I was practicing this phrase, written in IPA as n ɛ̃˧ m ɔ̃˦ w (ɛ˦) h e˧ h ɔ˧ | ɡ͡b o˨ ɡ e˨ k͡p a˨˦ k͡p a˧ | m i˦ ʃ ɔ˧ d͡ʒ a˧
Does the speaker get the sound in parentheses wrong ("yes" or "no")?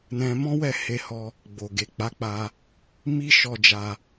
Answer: yes